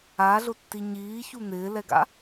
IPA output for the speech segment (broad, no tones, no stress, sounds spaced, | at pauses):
a ɮ ʊ tː i ɲ iː ç u n̪ ɪː l ɛ ɡ a̰